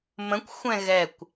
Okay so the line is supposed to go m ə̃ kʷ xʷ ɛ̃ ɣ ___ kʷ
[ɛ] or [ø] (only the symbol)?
ɛ